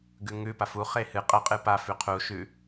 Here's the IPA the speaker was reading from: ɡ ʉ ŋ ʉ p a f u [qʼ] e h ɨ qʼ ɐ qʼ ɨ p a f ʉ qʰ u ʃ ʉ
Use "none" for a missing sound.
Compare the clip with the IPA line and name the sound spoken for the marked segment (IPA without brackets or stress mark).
χ